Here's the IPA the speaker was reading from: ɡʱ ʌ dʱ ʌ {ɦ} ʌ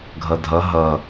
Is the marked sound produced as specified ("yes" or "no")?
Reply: yes